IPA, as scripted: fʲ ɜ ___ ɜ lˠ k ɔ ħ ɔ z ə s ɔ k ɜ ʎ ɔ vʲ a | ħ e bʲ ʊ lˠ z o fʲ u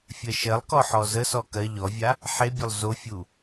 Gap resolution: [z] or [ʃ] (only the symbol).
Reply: ʃ